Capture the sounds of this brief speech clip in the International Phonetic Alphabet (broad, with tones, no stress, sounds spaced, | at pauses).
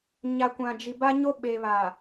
ɲ a˨ kʷ ã˨ d͡ʒ i˨ b a˦ ɲ o˦ ɓ e˨ β a˨